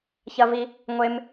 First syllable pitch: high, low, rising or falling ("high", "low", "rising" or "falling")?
high